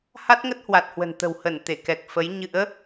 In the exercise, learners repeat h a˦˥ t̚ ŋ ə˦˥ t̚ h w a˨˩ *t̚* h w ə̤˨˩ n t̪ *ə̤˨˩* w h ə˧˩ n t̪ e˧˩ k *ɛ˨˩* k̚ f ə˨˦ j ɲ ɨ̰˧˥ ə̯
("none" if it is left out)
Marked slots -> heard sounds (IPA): t̚, ə̤˨˩, ɛ˨˩

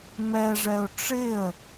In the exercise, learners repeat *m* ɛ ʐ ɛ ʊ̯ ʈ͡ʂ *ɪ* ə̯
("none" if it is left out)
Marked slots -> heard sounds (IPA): m, ɪ

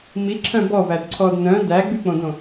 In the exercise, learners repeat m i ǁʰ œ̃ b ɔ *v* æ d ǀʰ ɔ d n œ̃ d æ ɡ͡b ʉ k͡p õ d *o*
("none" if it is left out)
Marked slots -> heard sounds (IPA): v, õ

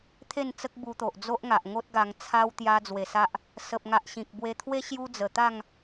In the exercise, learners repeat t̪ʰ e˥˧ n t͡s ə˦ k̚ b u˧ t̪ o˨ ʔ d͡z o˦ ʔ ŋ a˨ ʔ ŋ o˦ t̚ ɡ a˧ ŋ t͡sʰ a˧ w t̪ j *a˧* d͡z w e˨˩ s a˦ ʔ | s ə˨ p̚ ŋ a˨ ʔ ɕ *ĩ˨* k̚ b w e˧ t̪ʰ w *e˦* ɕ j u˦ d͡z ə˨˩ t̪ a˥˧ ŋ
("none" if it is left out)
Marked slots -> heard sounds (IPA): a˧, ĩ˨, e˦

